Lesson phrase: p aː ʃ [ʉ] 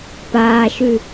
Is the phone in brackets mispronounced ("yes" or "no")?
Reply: no